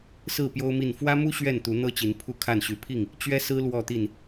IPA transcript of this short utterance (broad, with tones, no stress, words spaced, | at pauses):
sɹ̩˥˨ pjo˦ʊ̯mi˥˨n fwä˦mu˦ ɕɥɛ˥˨nt̪u˨˦n̪ɤ˦t͡ɕi˨˦n pʰu˥˨ kʰa˥˨n ɕy˨˦pʰi˥˨ŋ | t͡ɕɥɛ˦sɹ̩˦ lwɔ˥˨t̪i˥˨n